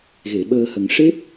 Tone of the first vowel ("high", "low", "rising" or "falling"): low